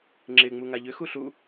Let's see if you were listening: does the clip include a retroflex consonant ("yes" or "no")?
no